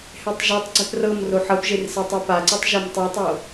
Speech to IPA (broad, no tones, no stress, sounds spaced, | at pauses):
h ɛ tˤ ʒ e tˤ ɡ͡ǀ ɛ p r ɤ m r o ħ ɤ p ʒ e r s ɛ tˤ ɛ p a ǀ ɯ tˤ ʒ e m tˤ i tˤ o